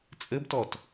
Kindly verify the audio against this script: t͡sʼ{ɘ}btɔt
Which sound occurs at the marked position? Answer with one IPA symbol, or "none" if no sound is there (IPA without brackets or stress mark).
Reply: ɘ